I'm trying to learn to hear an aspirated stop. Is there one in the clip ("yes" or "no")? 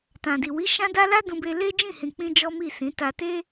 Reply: no